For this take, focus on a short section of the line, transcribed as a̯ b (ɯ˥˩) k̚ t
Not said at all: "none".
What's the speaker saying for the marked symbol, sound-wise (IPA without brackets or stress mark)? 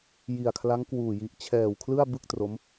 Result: ɯ˥˩